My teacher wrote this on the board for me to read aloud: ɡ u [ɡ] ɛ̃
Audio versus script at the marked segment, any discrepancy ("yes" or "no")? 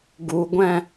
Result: yes